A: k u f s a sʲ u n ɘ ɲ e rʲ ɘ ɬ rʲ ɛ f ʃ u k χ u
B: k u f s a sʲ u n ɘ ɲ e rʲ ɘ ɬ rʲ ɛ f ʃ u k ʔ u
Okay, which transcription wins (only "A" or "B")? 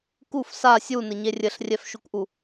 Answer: B